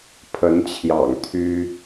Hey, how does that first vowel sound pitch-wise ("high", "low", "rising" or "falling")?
rising